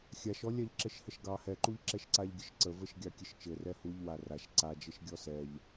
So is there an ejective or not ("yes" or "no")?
no